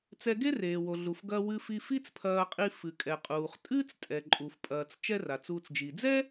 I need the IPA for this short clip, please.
t͡sɛ˧ɡe˥reː˩ wo˩ɮu˩fɡɐː˧ wɨ˧fi˧ fi˥t͡spʰɐː˧qʼi˧ fɨ˩kʼɛ˩qʼuː˩χ tʼɨː˥t͡stʼɛ˩ǃʼu˩fpʼɐː˩t͡s t͡ʃɛ˥ra˩t͡suː˧t͡s d͡ʒi˩d͡zɛ˥

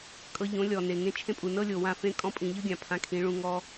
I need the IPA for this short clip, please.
kʼɤ˧ ʎõ˨˦lʲɔ˨ ne˨ŋẽ˧t͡ʃʰẽ˦pʼu˨ nɤ˦lʲo˨ wã˦˨fẽ˦ kʼɔ̃˦pʼĩ˨ ʎɯ˦ɡʲã˨ pʰã˧kʰĩ˨˦ɭũ˧ ŋɔ˧

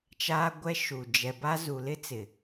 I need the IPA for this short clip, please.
t͡ʃaː˦ɡʷɛ˦ʃu˨ d͡ʒɛ˨ba˦zu˨ lɪ˦t͡sɪ˨

